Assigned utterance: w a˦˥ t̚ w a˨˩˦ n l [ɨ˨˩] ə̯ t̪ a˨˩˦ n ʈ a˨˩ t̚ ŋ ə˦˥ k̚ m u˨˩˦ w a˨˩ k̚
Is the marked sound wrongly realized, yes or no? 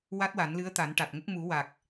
yes